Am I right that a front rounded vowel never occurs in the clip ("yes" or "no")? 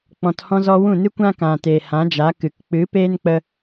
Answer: yes